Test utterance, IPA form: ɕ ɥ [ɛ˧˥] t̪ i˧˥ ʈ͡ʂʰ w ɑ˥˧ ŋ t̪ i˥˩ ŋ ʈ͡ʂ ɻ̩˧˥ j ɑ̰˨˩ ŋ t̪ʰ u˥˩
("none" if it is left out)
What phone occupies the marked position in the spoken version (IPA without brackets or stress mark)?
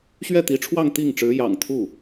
ɛ˥˩